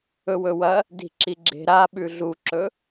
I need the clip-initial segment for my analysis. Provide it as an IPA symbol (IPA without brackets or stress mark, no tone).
ɵ